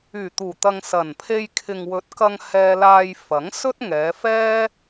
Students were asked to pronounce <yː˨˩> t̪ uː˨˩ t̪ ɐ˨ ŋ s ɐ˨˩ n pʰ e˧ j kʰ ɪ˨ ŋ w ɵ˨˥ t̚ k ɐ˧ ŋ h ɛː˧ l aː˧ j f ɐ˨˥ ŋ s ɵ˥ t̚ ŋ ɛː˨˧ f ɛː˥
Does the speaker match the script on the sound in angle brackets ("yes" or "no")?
yes